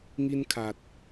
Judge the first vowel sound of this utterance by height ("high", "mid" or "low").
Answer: high